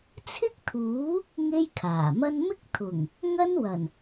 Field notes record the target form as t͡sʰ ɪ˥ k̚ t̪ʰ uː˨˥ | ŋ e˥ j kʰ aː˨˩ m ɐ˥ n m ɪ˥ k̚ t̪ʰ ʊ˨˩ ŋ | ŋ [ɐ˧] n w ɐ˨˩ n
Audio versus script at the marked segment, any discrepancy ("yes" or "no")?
yes